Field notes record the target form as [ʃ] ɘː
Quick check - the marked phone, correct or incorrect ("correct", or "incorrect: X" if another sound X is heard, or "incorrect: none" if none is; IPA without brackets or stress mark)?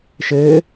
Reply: correct